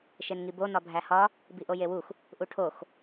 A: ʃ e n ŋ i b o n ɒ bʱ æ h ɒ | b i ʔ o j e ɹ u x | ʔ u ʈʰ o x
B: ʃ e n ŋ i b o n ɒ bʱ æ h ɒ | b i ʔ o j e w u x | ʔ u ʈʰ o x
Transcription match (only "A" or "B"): B